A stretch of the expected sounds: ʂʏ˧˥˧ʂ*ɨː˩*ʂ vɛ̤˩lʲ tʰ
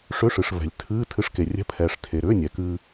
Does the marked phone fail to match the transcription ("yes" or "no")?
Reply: yes